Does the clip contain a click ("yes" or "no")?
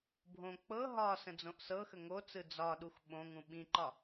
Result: yes